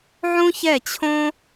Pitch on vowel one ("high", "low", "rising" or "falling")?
high